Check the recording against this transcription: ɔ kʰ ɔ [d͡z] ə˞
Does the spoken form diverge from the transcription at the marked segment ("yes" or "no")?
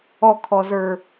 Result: yes